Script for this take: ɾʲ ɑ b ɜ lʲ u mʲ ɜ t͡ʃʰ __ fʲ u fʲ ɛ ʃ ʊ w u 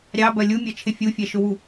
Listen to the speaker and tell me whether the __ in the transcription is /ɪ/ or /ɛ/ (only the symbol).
ɪ